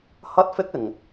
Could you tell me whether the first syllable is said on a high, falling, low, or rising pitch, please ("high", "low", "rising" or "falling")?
high